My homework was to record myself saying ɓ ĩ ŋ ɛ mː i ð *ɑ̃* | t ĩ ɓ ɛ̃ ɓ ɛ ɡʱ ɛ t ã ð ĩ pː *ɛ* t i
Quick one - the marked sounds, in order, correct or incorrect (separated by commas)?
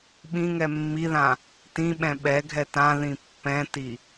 incorrect, incorrect